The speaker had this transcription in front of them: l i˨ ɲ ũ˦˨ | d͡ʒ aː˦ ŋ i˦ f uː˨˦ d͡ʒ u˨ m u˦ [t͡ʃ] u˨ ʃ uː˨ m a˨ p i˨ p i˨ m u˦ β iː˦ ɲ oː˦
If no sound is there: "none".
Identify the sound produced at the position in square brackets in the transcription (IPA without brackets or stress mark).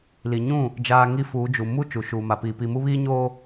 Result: t͡ʃ